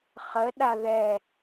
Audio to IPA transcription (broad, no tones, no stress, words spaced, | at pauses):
χəɗa ðɛ